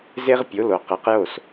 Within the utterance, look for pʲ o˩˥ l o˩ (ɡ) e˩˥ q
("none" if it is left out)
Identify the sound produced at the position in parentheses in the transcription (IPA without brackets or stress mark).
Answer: q